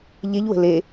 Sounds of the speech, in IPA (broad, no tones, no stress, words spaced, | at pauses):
ʎeʎwə̤ le